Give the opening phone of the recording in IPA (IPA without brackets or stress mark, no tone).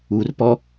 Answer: u